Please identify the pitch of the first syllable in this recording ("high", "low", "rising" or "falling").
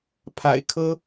low